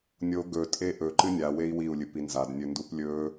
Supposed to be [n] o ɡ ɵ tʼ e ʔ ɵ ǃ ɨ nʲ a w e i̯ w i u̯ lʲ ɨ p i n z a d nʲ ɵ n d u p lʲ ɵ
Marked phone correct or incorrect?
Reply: incorrect